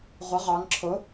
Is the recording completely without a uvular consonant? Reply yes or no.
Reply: no